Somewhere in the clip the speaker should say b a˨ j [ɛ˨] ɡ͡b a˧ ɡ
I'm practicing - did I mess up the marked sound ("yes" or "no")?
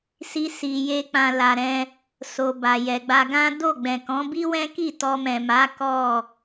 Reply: no